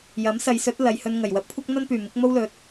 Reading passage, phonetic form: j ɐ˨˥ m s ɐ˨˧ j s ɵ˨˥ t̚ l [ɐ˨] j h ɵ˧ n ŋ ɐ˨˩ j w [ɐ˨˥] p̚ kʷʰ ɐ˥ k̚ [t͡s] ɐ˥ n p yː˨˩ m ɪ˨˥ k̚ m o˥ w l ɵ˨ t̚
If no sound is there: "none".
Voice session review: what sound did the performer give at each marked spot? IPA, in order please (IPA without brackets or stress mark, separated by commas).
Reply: ɐ˨, ɐ˨˥, n̪